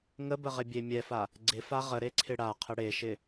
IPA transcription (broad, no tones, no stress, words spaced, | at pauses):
ŋəbəʁɪbʲe mʲɛfa | ɡ͡ǀɪfa ʁəɾeǀʰɪ ɽaqʰə ɽeʃɪ